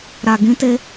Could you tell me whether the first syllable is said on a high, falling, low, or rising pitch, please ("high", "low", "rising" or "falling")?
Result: low